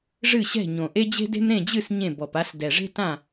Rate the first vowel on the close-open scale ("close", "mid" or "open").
close